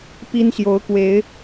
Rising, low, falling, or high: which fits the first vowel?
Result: high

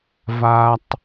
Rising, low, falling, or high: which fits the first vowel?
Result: low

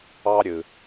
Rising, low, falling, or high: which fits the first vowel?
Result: high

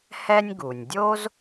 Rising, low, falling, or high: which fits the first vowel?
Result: high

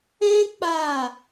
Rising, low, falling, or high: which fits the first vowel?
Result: high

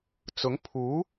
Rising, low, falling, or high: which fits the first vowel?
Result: rising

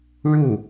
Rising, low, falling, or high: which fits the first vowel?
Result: falling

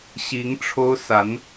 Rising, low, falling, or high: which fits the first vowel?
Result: rising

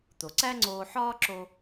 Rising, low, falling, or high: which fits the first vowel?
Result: low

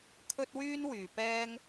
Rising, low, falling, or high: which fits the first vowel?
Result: high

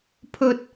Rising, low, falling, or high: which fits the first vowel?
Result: high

